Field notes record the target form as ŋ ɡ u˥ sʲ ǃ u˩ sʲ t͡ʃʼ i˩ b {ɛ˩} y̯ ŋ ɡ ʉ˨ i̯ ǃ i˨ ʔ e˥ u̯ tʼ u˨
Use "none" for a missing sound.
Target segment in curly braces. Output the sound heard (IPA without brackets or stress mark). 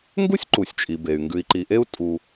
e˩